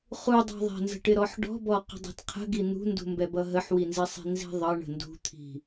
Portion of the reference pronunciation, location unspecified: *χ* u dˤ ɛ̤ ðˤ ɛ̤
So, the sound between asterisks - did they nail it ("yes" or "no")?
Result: yes